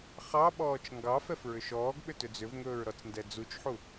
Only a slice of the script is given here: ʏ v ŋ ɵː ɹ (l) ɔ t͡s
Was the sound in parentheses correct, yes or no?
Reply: no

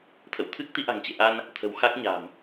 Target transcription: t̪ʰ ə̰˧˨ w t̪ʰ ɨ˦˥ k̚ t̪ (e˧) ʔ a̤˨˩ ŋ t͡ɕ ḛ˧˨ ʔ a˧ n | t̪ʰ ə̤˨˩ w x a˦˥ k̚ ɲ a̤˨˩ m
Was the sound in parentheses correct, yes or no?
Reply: no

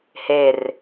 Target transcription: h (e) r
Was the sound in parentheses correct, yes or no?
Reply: yes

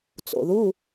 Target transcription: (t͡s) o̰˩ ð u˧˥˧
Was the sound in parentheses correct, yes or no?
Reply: yes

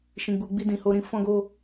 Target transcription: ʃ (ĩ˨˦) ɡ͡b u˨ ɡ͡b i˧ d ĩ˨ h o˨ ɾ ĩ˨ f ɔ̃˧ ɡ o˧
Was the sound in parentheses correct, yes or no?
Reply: no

